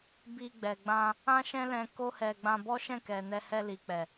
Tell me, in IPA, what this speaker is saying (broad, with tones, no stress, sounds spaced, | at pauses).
b i˧ ɡ͡b ɛ˨ ɡ͡b ã˧ | ã˦ ʃ ɛ̃˦ l ɛ̃˧ k o˦ h ɛ˧ ɡ͡b ã˧ b ɔ˦ ʃ ɛ̃˦˨ k ɛ˨ n ɛ˧ h ɛ˧ l i˨ k͡p ɛ˨